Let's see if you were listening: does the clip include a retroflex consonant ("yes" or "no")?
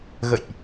no